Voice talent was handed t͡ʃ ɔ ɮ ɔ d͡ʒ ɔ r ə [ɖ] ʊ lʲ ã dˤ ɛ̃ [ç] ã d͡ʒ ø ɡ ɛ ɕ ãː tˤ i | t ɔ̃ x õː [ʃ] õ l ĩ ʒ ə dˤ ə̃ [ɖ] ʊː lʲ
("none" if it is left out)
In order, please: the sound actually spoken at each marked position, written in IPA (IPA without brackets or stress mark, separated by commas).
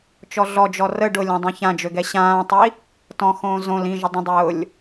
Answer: ɖ, ç, z, dˤ